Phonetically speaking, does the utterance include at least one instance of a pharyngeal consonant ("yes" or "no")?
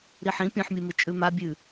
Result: yes